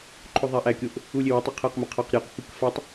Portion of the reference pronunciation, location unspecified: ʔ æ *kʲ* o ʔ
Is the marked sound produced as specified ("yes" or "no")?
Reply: yes